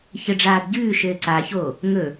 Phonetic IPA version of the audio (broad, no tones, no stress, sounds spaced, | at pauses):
ç ə ɖ͡ʐ aː d ɟ ʉː ʃ ɘː ǀ a ç o | ŋ ɵ